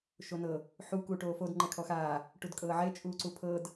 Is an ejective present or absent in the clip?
present